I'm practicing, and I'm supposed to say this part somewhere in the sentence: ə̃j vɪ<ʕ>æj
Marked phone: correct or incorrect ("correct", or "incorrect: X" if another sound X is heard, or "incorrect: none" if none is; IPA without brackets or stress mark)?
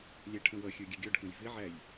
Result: correct